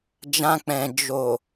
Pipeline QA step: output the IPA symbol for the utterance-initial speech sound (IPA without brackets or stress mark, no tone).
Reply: d͡ʒ